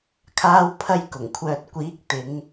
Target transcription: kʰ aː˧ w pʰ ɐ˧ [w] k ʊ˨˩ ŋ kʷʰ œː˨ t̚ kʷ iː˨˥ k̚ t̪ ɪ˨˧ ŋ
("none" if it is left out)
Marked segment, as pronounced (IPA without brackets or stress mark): j